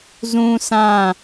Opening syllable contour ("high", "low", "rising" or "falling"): high